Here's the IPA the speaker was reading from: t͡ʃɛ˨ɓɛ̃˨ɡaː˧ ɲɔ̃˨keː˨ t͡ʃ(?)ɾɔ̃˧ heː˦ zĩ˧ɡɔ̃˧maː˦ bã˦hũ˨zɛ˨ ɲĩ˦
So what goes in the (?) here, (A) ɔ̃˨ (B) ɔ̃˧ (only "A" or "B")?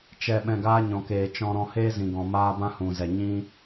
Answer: B